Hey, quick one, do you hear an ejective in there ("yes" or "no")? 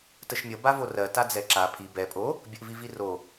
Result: yes